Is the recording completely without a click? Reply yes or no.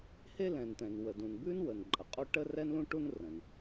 no